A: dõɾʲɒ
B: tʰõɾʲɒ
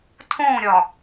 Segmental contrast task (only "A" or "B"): B